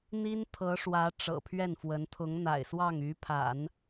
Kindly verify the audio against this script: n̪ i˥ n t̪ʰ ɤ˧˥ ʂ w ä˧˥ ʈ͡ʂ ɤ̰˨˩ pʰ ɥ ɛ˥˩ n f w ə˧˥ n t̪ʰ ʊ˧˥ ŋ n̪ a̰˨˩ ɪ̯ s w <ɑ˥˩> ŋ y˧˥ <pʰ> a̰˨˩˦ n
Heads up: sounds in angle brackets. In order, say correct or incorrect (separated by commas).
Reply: correct, correct